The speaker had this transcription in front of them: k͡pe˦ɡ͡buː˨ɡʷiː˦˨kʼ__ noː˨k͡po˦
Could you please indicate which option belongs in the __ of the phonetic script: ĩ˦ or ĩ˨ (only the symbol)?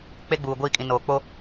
ĩ˨